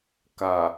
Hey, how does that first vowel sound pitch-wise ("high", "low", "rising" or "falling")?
low